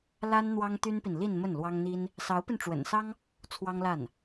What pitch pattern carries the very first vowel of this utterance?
high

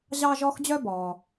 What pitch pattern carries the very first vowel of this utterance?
high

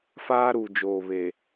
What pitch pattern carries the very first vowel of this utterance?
high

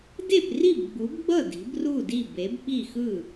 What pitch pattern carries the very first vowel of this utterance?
falling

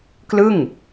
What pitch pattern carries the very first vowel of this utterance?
falling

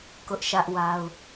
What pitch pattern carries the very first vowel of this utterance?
high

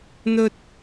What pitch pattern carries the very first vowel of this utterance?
high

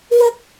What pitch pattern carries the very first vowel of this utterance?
high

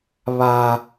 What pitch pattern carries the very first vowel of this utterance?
high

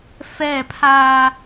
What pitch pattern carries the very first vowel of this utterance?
falling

